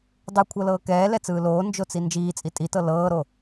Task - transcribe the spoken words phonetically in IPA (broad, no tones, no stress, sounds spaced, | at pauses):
dˤ ɯ kʷʰ ɤ l ɤː k ɛː l ɛ t͡s ɯː l oː n d͡ʒ o t͡s i n d͡ʒ iː t͡sʼ i tʼ i t ɤ l ɤː ɾ o